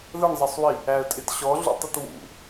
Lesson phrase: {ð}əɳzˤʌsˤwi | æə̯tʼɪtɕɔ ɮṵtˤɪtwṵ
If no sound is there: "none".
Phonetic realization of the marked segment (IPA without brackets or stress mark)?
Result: ð